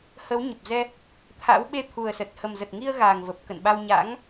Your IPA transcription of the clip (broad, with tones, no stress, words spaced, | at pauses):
hə˨˦wɲə˨˩p̚zɛ˧ | t̪ʰa̰˧˥w ɓe˧t̪ʰu˨˩ə̯sə˨˩t̚ hə˨˩mzə˨˩t̚ŋi˧ə̯ ɣa˨˩ŋvə˨˩p̚ kə̰˧˨nɓa˧wɲa̰˧˥ŋ